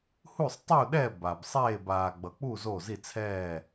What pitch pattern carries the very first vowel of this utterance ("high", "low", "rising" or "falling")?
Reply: falling